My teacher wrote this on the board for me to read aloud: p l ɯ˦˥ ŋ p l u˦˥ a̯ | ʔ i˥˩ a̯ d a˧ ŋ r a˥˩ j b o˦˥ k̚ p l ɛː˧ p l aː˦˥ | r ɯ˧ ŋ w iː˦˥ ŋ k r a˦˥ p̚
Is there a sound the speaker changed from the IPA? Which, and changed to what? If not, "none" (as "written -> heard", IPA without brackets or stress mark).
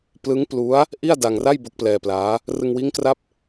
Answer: none